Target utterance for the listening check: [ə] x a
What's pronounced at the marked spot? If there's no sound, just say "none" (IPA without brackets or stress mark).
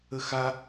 ə